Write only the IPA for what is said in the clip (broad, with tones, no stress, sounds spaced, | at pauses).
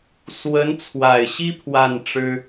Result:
s w ə˧˥ n t͡sʰ w a˨˩ ɪ̯ ɕ i˥ pʰ w a˥˩ n ʈ͡ʂ ɻ̩˥